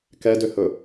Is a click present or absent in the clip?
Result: absent